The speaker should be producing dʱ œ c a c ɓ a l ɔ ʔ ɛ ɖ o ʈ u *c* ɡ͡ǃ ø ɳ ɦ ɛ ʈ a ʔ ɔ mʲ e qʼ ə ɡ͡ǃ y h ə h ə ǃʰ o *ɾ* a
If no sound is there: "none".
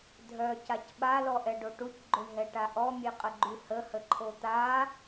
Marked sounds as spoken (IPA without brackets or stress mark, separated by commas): c, t̪